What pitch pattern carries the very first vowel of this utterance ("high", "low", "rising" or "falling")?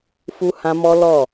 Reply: high